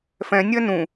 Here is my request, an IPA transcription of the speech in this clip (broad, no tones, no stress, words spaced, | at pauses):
fɛ̃ nʲɜnũ